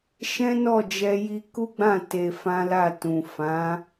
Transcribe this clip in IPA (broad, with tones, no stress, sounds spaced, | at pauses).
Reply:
ʃ ɛ̃˦ n ɔ˦˨ d͡ʒ ɛ˧ j i˧ k u˦ ɡ͡b ã˦˨ t e˧ f ã˦ l a˦˨ t ũ˨ f ã˨˦